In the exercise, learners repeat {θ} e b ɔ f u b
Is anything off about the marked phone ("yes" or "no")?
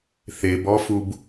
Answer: no